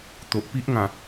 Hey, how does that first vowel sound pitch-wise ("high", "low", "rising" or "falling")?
low